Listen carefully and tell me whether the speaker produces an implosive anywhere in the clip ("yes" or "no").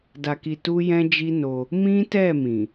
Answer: no